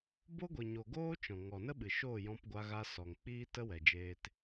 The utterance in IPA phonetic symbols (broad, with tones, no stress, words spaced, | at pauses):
bo˦ɡʷi˨ɲo˨ ɡoː˦t͡ʃɔ̃˨ ŋɔ˨nə˦ɓɨ˨ ʃoː˦˨jɔ̃˧pɡʷa˧ɣa˧ sɔ˨ŋk͡piː˦ tə˦wɛ˨d͡ʒeː˧t